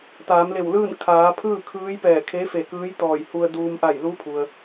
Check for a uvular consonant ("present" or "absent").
absent